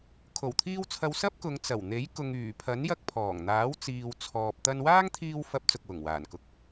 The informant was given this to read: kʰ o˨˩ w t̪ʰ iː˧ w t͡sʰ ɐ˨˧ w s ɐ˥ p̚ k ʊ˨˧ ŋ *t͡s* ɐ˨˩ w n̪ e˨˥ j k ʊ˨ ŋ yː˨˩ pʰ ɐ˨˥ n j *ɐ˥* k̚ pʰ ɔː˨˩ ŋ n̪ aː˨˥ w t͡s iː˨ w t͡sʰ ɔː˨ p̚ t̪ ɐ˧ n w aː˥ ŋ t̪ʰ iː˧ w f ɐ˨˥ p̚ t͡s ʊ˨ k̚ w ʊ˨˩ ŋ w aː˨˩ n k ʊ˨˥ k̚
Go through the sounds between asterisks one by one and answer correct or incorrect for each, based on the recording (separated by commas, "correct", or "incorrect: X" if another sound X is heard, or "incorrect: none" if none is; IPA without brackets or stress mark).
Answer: correct, incorrect: ɐ˧